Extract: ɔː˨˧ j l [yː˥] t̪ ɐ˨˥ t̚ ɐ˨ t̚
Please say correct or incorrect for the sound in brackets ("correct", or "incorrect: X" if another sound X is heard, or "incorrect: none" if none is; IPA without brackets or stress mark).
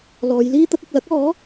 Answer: incorrect: iː˥